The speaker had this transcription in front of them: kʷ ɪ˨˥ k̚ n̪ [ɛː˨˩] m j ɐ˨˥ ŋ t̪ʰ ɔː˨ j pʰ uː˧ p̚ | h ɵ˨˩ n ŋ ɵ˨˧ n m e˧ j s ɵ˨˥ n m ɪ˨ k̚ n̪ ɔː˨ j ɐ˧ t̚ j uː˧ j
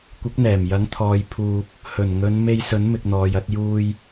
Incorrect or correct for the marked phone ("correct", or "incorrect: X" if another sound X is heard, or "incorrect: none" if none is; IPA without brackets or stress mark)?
correct